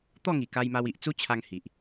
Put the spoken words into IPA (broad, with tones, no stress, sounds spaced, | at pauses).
t̪ ɔ˥˧ ŋ i˨˩ k a˧ j m a˧ w i˨ ʔ t͡s u˦ t͡ɕʰ a˧ ŋ h i˨ ʔ